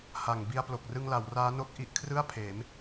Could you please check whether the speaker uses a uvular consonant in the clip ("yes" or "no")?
no